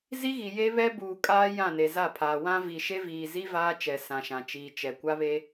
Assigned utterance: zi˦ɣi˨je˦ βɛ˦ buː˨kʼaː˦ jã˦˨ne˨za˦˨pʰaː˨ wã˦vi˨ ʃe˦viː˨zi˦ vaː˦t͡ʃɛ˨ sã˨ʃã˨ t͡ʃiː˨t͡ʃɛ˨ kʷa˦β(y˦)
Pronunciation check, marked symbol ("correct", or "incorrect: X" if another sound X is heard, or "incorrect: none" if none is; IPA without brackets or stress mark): incorrect: e˦